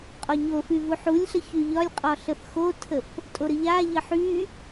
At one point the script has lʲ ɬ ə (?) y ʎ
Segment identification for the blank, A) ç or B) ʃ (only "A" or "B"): A